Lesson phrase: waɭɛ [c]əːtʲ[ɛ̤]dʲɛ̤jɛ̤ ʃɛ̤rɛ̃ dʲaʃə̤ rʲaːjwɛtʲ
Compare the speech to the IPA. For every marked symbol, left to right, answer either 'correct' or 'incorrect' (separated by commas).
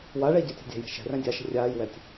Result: incorrect, correct